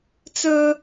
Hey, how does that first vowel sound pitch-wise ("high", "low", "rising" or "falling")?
high